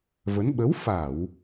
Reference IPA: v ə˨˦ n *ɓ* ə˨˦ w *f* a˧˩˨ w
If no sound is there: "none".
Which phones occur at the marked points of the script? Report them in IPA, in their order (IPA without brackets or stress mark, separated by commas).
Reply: ɓ, f